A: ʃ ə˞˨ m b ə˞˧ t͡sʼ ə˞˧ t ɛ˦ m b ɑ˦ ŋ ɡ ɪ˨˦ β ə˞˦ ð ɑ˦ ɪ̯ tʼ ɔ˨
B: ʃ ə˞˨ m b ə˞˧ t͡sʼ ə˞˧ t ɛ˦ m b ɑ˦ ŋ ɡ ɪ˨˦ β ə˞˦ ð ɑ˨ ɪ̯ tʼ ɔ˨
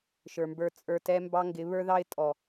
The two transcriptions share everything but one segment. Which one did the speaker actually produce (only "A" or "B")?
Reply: A